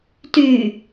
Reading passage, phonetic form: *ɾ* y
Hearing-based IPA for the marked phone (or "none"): t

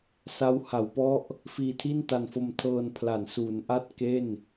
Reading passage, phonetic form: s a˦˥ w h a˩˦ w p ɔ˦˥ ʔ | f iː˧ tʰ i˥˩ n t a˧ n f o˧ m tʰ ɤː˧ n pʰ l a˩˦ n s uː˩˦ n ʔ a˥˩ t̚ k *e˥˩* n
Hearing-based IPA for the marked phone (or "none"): e˥˩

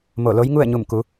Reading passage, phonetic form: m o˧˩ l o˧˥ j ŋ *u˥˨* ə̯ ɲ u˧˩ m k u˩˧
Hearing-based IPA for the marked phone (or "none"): u˥˨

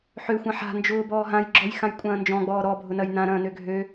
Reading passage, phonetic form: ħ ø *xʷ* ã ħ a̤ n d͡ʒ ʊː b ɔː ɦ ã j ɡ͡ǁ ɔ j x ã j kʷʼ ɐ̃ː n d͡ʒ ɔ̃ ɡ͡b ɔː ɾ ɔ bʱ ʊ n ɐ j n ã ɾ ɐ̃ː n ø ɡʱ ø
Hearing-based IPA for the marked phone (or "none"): xʷ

